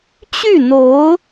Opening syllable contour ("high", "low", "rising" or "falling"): falling